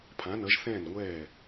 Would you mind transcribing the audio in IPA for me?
pʰ ã˩˧ n ʌ˩˧ ʒ θ ɛ̃ː˧˩ n ŋʷ ɛː˧˩

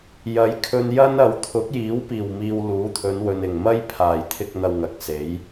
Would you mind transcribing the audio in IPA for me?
j ɐ˨˥ j kʰ ɵ˧ n j ɐ˥ n ɐ˨ w t̪ʰ ʊ˨˥ k̚ j iː˨˥ w p iː˨˩ w m iː˨ w l uː˨˥ t̪ʰ ɵ˨˧ n w ɵ˨ n ɪ˨˩ ŋ m ɐ˥ j pʰ aː˨˩ j t̪ʰ ɪ˧ k̚ n̪ ɐ˧ w ŋ ɐ˨˥ k̚ s e˨˥ j

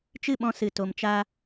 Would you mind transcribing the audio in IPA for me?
t͡ʃ ɨ˦˨ ɓ ɔ̃˧ s ɨ˨ t o˨ m t͡ʃ a˦

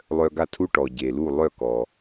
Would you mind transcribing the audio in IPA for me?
lˠ œ˧ ɡ a˥˩ tʰ u˥ ʈ ɔ˩ ɟ e˩ l u˥˩ lˠ œ˥˩ k ɔ˩

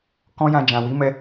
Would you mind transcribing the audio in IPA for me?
k ɔ̃˦ j ã˧ d͡ʒ ã˨ w i˨˦ m ɛ˧

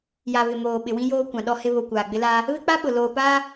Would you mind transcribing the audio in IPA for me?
j a˨ β ɪ˨ m oː˨ ɓ ɪ˨ w ĩ˦ j oː˦ kʷ ã˨ ɗ ɔ˦ h ɪ˦ β o˨ kʷ aː˨ ɡ͡b ɪ˦ l aː˦ | β ɪ˦ k͡p a˦ ɓ ʊ˨ l oː˨ p aː˦

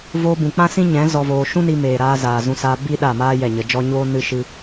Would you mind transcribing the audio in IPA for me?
v oː˧ b ũ˨ k͡p ã˦ s ĩ˦ ɲ ɛ̃˨˦ z ɔ˧ v oː˧ ʃ ũ˦ n i˧ m eː˨ ɾ aː˧ z aː˨ z ũ˧ s aː˧ b i˦ ɗ a˦˨ m aː˦ j ɛ˦˨ ɲ ə˧ d͡ʒ ɔ˦ ɲ oː˦ n ɨ˦ ʃ ɨ˦

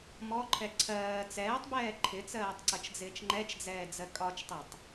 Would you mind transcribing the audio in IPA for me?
m ɔ ǃʰ ɛ ǀʰ ɜː t͡s ɛː tˤ b ɛː ǃʰ ɪ t͡s ɜː tˤ ǀ ʌ t͡ʃ d͡z ɪː t͡ʃ ŋ͡ǃ ɛ t͡ʃ d͡z ɛː d͡z ɜ kʼ ɒ t͡ʃ tˤ ɜ tˤ

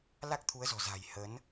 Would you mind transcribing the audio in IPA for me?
l a˦˥ k̚ t̪ʰ u˨˦ ə̯ z ɔ̤˨˩ z a̤˨˩ j h ə˨˦ n

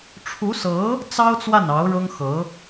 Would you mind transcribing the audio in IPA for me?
ʈ͡ʂʰ u˧˥ s ɤ˧˥ | t͡s ɑ˥ ʊ̯ t͡s w a˥˩ n ɑ˧˥ ʊ̯ ɻ ɤ˥ ŋ x ɤ˧˥

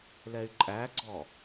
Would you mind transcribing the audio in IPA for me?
l ɛ y̯ ǃʼ æ ɡ͡ǀ ɔ

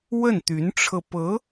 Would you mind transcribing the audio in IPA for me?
w ə˥˩ n t̪ y˧˥ n ʈ͡ʂʰ ɤ˧ p ɤ˧˥

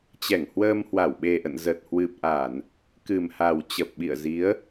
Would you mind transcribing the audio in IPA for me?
t͡ɕ ɛ˧˩ ŋ h w əː˧ m h w a˧˩ w ɓ e˨˩ ʔ ə̰˧˨ n z ə˨˩ t̚ h w ɨ˨˩ p̚ ʔ a˧˩˨ n | k ɨ˨˩ m h a˨˩ w t͡ɕ ə˨˩ p̚ ɓ ḭ˧˨ ə̯ z i˨˦ ə̯

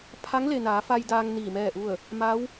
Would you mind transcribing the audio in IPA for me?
pʰ a˧˥ ŋ l e˩ n aː˩˧ f a˧ j d aː˧ ŋ n iː˧˩ m ɛː˥˨ ʔ u˥˨ ə̯ | m a˧˥ w

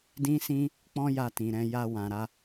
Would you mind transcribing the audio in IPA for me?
d ĩ˦ s ĩ˦ | k͡p ɔ̃˦ j a˧ t ĩ˨ ɾ ɛ̃˧ j a˧ w ã˨ ɾ a˧

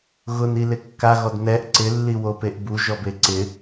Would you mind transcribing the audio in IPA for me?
ɣ ʊ n i l ɪ kː a ɣ ɔ d n ɛ ʔ ǀ ɪ lː i w o p e ʔ b u ʒ ɔ b e ǀ ɪ

